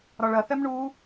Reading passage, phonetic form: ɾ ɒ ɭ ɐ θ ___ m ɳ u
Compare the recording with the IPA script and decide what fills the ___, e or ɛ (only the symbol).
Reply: ɛ